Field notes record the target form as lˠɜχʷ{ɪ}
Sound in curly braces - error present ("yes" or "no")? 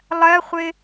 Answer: no